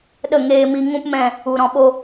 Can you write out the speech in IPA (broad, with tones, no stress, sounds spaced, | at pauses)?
ɗ ə˦˨ ŋ eː˧ m i˧ ŋ ũ˦ p m ɛ̃˦˨ | u˨ ɾ ɔ̃˨ ɓ o˧